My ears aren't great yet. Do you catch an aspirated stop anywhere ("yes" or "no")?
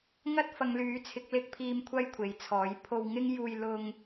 yes